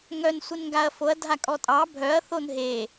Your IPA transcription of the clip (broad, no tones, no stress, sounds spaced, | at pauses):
ŋ œ n sʷ e n ŋ ɡ a ɐ̯ f o ɐ̯ dʱ a kʼ ɔ tʼ ɑ bʱ œ ɐ̯ θ o n ɦ e